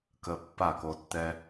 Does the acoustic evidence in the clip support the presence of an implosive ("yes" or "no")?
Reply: no